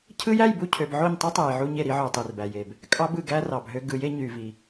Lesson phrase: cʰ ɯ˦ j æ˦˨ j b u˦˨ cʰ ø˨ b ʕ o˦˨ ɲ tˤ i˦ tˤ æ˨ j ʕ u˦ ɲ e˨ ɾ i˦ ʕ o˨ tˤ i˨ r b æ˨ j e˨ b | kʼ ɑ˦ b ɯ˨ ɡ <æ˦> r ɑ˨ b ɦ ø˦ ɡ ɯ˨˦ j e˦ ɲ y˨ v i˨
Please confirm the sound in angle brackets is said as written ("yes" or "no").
yes